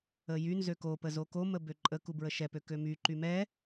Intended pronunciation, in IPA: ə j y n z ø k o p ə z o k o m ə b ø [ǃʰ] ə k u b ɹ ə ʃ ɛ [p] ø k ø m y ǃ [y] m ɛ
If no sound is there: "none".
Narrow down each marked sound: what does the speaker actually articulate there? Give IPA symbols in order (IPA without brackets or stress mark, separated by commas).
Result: ǃʼ, p, y